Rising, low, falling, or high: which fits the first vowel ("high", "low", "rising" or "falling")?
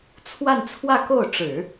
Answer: falling